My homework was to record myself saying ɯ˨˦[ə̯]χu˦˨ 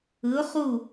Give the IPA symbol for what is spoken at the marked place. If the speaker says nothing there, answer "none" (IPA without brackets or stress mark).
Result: ʊ̯